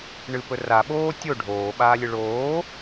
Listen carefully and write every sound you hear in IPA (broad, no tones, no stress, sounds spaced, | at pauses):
ɳ ɨ p ɵ r a ɓ oː tʲ o ɖʱ oː ɓ aː lʲ ɨ ɭ oː